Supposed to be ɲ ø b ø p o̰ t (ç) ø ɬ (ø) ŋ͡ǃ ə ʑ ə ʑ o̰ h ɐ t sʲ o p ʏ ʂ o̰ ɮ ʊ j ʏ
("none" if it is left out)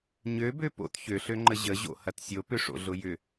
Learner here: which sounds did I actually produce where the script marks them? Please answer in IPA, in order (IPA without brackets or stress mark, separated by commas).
ç, ø